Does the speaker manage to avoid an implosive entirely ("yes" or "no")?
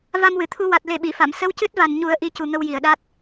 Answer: no